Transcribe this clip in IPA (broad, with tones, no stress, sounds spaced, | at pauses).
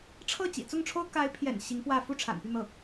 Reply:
ʈ͡ʂʰ ɤ˥˩ t͡ɕ ḭ˨˩ t͡s ʊ˥˩ ŋ ʈ͡ʂʰ o˥ ʊ̯ k a˧˥ ɪ̯ pʰ j ɛ̰˨˩ n ɕ i˧˥ ŋ p w ä˥˩ f u˥ ʈ͡ʂʰ a̰˨˩ n p y˥˧ n̪ ɤ˥˩